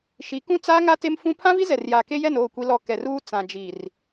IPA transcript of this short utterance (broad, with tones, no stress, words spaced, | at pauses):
ʃi˨˦ kũ˦t͡saː˦ŋa˦ te˦mfũ˦ pʰã˦vi˦zɛ˨rjaː˨ ke˦jɛ˦˨n oː˦˨kʷi˦lɔ˦˨ kɛ˨ruː˦ t͡sã˨d͡ʒi˨r